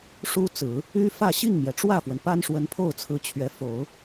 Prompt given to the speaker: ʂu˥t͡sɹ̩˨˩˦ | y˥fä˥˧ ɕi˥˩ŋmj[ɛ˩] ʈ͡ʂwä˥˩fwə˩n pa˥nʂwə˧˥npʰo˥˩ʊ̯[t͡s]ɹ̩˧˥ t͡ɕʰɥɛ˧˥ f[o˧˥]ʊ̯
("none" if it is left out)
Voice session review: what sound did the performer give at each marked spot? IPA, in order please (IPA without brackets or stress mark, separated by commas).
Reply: ɛ˩, t͡sʰ, o˨˩˦